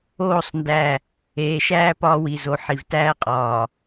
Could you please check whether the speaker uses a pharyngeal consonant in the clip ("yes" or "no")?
yes